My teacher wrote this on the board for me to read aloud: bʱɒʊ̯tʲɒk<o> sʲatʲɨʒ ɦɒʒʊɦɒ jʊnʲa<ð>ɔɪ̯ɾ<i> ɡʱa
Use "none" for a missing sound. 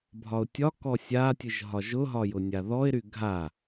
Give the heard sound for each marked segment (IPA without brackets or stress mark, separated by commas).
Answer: ɔ, ð, y